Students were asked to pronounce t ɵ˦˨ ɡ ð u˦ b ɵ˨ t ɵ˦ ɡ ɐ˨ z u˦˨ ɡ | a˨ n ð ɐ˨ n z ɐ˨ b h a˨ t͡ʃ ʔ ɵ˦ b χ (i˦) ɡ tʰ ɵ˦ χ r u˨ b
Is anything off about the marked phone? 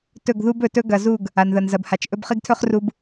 no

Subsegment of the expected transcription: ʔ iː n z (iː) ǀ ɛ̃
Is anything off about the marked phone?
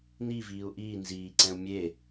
no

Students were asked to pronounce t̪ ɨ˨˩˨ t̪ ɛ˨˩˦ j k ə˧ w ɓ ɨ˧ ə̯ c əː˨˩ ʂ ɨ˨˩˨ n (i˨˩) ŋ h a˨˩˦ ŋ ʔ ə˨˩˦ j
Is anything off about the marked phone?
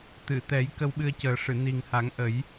no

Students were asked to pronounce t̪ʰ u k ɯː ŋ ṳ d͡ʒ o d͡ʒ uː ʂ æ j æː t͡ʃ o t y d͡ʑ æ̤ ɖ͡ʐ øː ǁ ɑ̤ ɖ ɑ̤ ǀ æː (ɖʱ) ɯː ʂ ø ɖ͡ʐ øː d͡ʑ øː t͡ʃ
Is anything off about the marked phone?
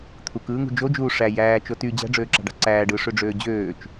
yes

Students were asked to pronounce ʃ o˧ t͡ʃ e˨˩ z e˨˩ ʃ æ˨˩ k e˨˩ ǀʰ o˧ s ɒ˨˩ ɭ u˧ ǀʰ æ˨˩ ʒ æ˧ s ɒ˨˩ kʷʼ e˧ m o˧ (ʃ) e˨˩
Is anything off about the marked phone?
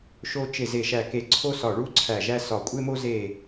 yes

